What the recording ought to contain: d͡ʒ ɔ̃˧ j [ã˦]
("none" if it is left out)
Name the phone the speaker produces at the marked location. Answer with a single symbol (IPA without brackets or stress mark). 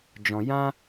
ã˦